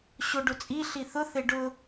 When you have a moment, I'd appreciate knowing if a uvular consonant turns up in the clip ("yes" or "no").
no